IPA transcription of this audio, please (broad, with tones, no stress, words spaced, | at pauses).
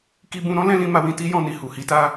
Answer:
ki˧bũ˧ɾɔ̃˦ lɛ̃˦lĩ˧ma˧ wĩ˧ti˦jɔ̃˧ni˨ hu˨hi˨˦ta˦